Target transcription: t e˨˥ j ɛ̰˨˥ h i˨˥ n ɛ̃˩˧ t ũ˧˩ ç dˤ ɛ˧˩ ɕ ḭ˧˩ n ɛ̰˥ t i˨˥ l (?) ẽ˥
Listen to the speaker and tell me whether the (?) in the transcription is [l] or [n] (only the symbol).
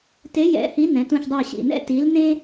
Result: n